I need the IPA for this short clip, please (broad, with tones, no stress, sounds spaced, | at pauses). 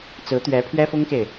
t͡s ɹ̩˧˥ t̪ ɥ ɛ˧˥ pʰ ɥ ɛ˥ f ʊ˥ ŋ k e˨ ɪ̯